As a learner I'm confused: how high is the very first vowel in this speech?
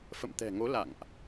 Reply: mid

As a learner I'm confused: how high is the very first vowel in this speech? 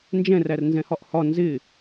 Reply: mid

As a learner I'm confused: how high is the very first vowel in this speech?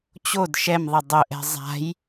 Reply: mid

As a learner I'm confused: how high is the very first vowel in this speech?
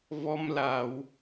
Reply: mid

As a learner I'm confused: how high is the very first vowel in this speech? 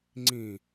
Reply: high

